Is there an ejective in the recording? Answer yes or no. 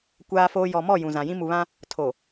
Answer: no